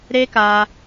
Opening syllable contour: high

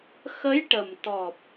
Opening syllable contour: rising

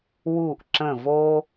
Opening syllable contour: falling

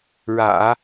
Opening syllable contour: low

